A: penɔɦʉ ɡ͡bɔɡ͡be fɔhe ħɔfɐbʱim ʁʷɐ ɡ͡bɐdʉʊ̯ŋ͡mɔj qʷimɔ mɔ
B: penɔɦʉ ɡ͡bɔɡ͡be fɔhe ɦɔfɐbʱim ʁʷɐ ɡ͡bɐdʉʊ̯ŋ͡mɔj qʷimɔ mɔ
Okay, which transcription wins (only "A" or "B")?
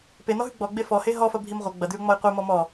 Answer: B